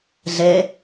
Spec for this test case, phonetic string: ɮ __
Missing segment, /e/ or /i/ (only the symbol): e